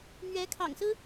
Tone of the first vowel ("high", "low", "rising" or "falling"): rising